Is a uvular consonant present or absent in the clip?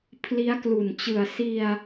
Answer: absent